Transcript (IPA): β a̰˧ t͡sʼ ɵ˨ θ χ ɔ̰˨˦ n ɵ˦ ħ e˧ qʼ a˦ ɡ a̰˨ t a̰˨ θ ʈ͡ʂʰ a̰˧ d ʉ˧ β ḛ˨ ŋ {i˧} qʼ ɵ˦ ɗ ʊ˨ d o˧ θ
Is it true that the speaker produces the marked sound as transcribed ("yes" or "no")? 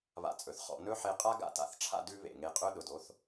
no